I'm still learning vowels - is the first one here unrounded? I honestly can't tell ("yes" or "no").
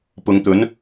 no